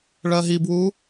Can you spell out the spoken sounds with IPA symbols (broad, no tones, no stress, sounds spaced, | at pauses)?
ɭ ɜ ɦ i b w u